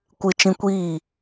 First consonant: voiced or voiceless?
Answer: voiceless